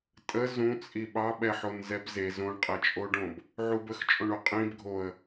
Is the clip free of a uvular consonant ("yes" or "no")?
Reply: no